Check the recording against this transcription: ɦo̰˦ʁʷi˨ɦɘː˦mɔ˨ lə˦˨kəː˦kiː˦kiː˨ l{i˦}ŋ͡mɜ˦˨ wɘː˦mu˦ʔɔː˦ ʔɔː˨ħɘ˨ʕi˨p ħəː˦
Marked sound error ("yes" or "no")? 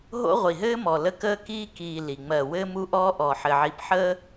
yes